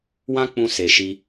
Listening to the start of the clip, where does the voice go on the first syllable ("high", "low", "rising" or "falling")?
high